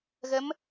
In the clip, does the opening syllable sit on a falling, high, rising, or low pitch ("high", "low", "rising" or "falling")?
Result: rising